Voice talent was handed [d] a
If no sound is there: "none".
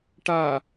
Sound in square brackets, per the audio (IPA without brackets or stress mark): ʈ